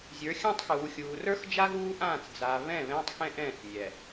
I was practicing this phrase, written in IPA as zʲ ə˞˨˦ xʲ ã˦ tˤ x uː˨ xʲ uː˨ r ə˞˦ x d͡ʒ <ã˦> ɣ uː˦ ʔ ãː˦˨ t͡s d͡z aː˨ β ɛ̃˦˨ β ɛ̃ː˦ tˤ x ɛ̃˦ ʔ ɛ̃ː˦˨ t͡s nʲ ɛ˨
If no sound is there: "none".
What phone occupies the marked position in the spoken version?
a˦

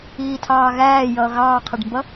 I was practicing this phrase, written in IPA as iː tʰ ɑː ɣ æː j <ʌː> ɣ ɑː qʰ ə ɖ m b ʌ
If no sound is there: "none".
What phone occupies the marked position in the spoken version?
ʌː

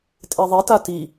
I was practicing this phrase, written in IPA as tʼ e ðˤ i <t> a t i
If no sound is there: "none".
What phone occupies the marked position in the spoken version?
t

